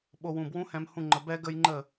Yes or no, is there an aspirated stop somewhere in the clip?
no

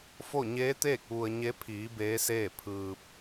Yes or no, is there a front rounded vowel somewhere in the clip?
no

